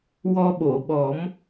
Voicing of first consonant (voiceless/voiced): voiced